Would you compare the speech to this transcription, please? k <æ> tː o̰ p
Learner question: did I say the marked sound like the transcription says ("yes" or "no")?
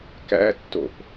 no